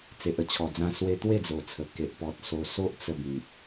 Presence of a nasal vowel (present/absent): present